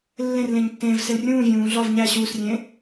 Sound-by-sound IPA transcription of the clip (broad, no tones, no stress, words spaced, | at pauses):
lːẽr lẽɲtːẽːvsel rʲũː vʲũː ɮɒv ɲæ ɕuːsrʲẽː